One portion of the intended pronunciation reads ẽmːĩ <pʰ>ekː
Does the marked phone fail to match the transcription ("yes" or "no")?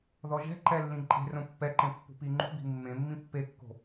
yes